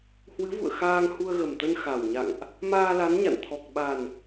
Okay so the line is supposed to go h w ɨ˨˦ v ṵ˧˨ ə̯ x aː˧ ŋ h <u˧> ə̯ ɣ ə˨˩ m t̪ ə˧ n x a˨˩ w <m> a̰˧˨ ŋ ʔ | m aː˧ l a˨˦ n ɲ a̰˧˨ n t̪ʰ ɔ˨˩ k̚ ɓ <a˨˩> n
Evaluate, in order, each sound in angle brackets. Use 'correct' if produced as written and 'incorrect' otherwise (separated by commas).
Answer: correct, incorrect, correct